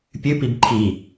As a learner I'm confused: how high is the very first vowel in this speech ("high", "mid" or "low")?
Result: high